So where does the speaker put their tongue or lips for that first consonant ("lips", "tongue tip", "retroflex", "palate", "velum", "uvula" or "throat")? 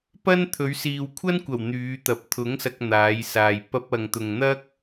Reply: lips